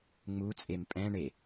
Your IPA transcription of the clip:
ŋ͡m u t͡sʼ e m pʼ ɛ̃ ɳ e

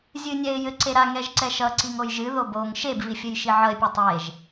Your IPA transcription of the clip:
zʲ ɨ nʲ ɛ ɪ̯ j ɘ ǀ e ɾ a ŋ ɛ ʒ ǀ ɛ ʃ ʌ ǀ i ŋ o j ʒ ɨ ð o b o ŋ ʃ e b v i fʲ ɘ j ʃ i ʕ ʌ ɪ̯ pʲ ɛ tˤ e ʒ

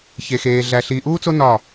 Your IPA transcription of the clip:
ç e˧ x eː˧ ɮ æ˧ ɬ iː˧ ʔ uː˥ t͡s o˥ n ɒ˥˧

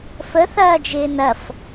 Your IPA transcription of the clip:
f ə θ ɐː d͡ʒ ɪː n ɐ f

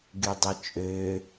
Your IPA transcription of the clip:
ɡ y dˤ ɯ t͡ʃʼ ø

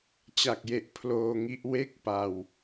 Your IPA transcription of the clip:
t͡ɕ a˨˩ k̚ j e˨˩ ʔ pʰ l oː˧ ŋ i˦˥ ʔ w e˥˩ k̚ p a˧ w

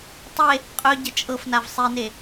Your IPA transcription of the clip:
tˤ e | qʼ œ ɟ ə t͡ʃʼ ɤ f n a v sˤ i n e

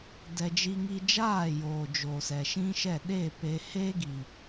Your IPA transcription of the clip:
d ɛ˧ d͡ʒ i˧ ŋ i˧ d͡ʒ aː˦˨ j oː˨ d͡ʒ o˨ s ɛ˨ ʃ ĩ˦ ʃ ɛ˦˨ ɗ e˦˨ p e˧ h eː˦ ɡ i˨

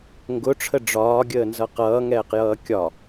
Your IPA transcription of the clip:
ŋ ɡ ʊ ʈ͡ʂʰ ə ɖ͡ʐ ɒː ɡʲ əː n z ʌ q ʌː ŋ ɛː q j ʌː kʲ ɒ

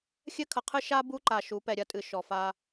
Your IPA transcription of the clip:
xʲ ɘ˦ kʰ ɐ˨ qʰ ɨ˦ ʃ a˦ b u˦ ǃ a˨ ʃ u˨˦ p ɛ˨ ɾʲ ɐ˦ tʼ ɨ˨ ʃ ɔ˨ f a˦

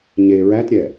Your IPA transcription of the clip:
ɲ e ɹ æ t ɾʲ ɛː

